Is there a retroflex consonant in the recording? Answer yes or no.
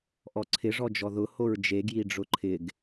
yes